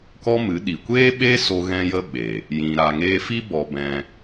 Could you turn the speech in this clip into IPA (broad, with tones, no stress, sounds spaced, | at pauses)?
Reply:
k ɔ˦ m ɨ˨˦ ɗ i˨ kʷ eː˦ ɓ e˦ s o˧ ɣ ɛ̃˦ j ə˦ ɓ e˨ | j ĩ˨ ɾ a˨ ŋ eː˧ f i˦ b ɔ˧ b ɛ̃˧